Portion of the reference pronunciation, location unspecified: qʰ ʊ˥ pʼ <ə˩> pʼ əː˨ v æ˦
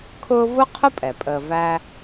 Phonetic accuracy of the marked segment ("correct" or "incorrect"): incorrect